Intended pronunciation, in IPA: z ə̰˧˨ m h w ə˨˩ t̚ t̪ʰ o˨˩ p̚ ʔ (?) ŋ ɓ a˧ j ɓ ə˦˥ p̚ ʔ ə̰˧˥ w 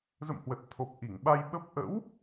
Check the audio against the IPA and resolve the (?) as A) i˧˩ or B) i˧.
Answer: A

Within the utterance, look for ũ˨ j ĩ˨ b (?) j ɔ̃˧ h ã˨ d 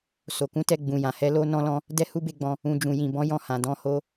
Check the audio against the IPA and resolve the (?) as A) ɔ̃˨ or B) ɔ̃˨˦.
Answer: B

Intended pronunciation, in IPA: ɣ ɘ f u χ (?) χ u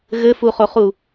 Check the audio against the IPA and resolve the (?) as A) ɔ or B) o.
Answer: B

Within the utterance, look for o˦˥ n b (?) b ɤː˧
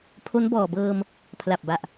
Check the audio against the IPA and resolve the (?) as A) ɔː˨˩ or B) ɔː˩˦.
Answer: A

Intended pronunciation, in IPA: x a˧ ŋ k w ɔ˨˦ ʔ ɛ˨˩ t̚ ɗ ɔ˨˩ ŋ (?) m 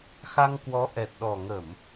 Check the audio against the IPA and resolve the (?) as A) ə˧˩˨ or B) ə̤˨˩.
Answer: A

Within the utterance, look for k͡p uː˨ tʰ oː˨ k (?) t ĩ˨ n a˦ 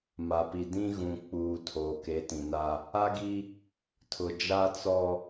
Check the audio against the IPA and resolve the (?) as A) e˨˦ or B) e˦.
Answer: A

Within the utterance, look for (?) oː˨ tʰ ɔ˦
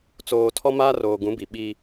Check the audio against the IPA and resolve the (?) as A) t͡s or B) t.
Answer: A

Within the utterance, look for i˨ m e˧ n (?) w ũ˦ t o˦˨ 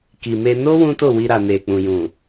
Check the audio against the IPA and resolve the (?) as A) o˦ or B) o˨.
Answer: A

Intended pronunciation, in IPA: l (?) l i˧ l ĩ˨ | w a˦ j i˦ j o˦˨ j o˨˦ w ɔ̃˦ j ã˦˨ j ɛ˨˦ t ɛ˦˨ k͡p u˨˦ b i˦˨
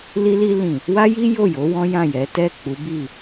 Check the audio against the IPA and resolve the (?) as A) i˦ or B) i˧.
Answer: B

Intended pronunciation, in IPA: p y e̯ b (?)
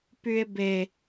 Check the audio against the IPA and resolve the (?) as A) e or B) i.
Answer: A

